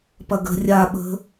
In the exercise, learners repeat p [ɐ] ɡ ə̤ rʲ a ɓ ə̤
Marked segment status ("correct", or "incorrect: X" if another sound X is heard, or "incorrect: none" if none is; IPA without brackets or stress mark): correct